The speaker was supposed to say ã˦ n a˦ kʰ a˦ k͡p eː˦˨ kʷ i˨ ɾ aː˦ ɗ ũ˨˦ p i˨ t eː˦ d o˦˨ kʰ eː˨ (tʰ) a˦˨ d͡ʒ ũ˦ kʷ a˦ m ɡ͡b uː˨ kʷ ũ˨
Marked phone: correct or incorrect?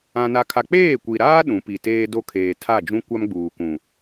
correct